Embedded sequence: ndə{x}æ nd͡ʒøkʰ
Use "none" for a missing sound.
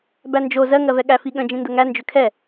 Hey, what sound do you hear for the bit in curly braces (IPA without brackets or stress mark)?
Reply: ŋ